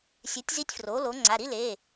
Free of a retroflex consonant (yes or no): yes